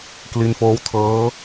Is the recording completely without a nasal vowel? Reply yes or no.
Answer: yes